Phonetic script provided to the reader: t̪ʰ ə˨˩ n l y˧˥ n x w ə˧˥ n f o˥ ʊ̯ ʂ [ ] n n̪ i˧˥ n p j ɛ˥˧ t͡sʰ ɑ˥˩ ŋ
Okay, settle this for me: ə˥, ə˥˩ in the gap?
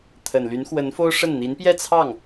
ə˥˩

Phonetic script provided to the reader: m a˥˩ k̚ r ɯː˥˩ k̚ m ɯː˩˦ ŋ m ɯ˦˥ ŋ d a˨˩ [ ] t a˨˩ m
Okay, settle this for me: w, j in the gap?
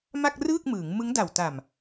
w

